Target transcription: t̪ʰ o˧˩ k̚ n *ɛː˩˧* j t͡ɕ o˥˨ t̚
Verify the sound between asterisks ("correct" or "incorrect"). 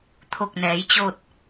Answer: correct